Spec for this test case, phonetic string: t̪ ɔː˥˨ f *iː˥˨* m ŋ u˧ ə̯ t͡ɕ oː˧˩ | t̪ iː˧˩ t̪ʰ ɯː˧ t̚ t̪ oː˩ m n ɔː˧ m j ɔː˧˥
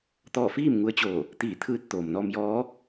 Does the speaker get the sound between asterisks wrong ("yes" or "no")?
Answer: no